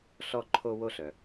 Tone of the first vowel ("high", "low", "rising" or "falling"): high